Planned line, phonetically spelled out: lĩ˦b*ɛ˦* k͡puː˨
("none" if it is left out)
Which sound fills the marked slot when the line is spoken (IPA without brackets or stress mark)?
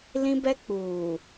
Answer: ɛ˦